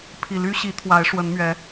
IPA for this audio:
pʰ i˨˩ l y˦ ɕ i˨˦ t̪ʰ w a˨˦ ɪ̯ ʂ w ə˨˦ n m ɥ ɛ˨˦

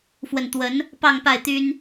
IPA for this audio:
f w ə˨˩ n t̪ w ə˨˦ n | p ɑ˥˨ ŋ p a˥˨ ɪ̯ t̪ y˦ n

